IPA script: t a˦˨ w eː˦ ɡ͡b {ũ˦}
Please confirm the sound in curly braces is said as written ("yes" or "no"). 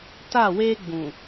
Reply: no